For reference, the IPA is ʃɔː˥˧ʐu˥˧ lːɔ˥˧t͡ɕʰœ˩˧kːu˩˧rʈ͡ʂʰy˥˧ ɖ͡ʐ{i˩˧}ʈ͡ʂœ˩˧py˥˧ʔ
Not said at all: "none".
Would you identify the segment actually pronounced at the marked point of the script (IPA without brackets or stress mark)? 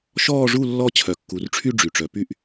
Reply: y˩˧